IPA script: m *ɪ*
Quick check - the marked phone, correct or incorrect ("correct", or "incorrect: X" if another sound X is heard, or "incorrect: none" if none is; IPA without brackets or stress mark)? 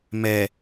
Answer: incorrect: ɛ